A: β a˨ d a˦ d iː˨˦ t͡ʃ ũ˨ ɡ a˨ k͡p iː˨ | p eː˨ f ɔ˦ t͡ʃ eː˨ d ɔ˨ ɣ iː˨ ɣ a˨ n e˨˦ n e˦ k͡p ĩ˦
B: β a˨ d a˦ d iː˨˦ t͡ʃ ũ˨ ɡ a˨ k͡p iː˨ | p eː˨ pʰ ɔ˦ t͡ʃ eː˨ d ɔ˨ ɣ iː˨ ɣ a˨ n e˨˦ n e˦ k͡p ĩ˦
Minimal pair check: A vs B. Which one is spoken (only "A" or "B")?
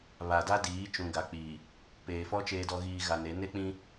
A